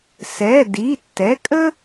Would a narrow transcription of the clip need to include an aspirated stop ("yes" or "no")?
no